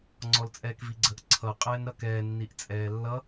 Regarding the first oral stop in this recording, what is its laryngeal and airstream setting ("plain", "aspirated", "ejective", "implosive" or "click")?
click